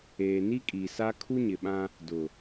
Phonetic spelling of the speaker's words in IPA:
eː˨ n i˦ kʼ i˨ s a˦ kʰ u˦ ɲ ɪ˨ ɓ ã˦ | d ʊ˨

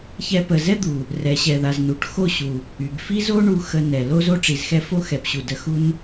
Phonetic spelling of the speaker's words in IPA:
ç ɛ˧ p ə˨ z ɛ˦ d̪ u˨ | r ɛ˨ ɕ ɛ˨ ð a˨ z n u˨ ʈ x o˦˨ ɕ u˨ | y˨ ɡ f i˦ z o˦ ɳ u˧ x ə˧ n ɛ˨ l o˦ z o˦ ʈ͡ʂ i˨ z x ɛ˦ f o˦ x ɛ˨ p ɕ u˨ d ə˧ x u˦ n

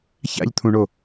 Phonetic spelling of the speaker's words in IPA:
ç a̰ ʎ t̪ʰ ũ ɳ o

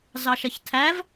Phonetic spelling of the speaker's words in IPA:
z ɑ ʃ ɐ ç tʰ æ v

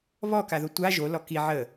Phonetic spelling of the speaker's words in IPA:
β ɔ k a ð o tʷ a ʒ o l ɔ k i ʕ ə

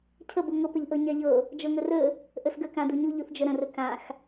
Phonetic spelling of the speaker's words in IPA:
cʰ ə b u ŋ ɤ p ə ʎ ʔ ɤ ɲ a ʎ ɤ | d͡ʒ ɤ ŋ ɵ r ɵ | ʔ ɵ s ɡ ə k ã d u ɲ u ʎ u θ d͡ʒ ə ɾ ə̃ r ɵ k ã x

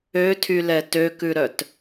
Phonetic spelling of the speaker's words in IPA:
ø tʰ y l ɛ t ø k ʉ ɾ œ t

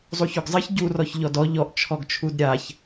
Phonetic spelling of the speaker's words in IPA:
zˤ u ç o ɡ zˤ ɘ ç ɟ u r ɔ ç ʎ ɔ d ɔ ʎ ɔ ʔ t͡ʃʰ ɔ ɡ t͡ʃʰ u d ɾʲ a ç

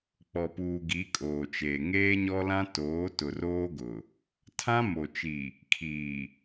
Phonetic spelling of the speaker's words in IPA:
k͡p ɔ˨ p uː˨ ɡ i˨˦ kʼ oː˨ t͡ʃ eː˨ ŋ eː˦ ɲ ɔ˦ l ã˦ t oː˨˦ t ʊ˨ r oː˦ ɡ ʊ˨ | tʰ ã˦ m o˨ t͡ʃ i˨ | kʰ iː˨

